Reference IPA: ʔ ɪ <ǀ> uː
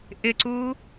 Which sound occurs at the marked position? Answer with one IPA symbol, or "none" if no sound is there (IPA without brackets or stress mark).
ǀ